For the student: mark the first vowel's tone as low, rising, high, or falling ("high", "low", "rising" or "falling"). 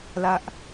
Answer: high